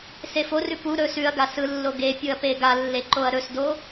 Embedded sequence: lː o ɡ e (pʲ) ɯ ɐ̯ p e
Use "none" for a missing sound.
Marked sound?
pʲ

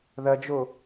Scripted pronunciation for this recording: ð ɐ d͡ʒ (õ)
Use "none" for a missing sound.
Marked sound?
o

